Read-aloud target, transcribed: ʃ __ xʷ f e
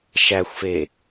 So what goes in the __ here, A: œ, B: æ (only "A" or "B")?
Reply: B